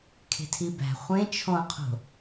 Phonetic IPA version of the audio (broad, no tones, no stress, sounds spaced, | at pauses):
kʰ e̤ tʰ i b æ̤ χʷ ẽ t͡ʃʰ õ qʰ o̤